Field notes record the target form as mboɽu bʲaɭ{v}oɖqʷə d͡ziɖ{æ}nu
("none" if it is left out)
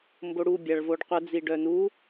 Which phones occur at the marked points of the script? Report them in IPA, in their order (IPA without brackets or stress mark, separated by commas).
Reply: v, œ